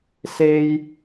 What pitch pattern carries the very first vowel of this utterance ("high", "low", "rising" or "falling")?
high